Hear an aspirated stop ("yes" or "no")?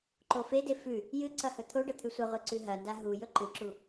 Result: yes